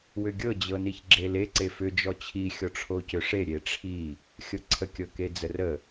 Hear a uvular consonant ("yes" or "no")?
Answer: no